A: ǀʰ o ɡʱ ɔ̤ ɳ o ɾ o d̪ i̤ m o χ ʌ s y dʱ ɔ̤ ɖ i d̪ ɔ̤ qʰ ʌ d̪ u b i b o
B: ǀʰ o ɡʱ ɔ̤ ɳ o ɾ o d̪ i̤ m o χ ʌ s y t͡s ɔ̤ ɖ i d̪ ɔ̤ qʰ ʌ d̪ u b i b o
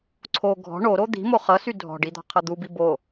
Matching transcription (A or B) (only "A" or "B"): A